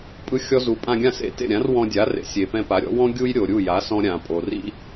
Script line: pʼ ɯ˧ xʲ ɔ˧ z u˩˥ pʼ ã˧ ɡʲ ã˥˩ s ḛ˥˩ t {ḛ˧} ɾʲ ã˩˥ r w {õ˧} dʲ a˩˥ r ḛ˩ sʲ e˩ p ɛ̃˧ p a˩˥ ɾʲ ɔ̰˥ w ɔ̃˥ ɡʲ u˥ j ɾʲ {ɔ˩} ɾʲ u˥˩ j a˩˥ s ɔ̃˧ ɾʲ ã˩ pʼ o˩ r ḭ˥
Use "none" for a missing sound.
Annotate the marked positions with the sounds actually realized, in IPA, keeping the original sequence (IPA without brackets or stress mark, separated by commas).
ḛ˥˩, ɔ̃˧, o˩